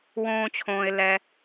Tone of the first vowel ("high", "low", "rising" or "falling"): low